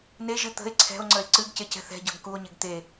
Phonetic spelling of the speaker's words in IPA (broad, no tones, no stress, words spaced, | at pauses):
neʒɨ t̪ə̤e̯ ǀʰɛ̤o̯ŋ͡ǀəe̯ ǀɨɡcecɛ̤ θɛ̤ɟɤɡ kuo̯ɲeɡ t̪e